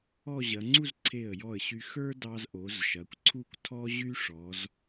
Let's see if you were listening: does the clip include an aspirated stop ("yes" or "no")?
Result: yes